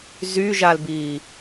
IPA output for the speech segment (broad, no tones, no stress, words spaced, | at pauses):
zyʒalbiː